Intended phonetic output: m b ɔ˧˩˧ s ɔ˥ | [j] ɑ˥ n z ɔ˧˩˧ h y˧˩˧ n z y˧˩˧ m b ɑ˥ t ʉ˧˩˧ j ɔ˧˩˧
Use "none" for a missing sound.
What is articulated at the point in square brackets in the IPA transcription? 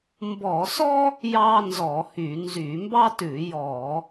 j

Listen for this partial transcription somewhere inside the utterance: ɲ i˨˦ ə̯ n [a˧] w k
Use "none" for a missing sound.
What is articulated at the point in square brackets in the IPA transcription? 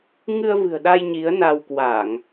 a˧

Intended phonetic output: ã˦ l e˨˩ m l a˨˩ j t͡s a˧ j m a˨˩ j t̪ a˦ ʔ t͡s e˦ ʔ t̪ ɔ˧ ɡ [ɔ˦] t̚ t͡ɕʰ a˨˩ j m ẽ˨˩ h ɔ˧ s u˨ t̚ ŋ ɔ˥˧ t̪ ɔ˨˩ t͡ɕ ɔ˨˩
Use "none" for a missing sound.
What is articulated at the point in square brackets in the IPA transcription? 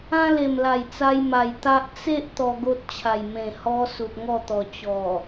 o˦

